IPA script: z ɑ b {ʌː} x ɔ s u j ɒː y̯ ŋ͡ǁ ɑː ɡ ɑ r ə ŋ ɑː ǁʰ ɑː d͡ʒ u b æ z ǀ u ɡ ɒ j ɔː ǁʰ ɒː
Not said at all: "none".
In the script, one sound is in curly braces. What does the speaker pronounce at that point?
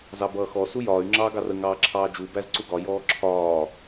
ʌː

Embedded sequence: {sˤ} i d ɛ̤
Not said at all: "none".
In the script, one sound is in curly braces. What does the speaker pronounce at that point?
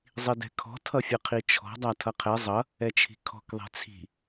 zˤ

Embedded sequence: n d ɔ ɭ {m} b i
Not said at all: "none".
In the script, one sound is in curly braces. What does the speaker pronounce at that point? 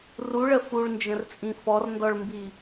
m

